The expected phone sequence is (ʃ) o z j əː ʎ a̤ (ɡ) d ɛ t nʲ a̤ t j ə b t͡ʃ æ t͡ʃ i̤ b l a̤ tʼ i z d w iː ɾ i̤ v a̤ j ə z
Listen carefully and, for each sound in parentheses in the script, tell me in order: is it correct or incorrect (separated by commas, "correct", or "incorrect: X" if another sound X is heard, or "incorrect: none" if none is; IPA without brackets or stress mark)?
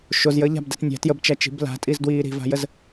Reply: correct, incorrect: b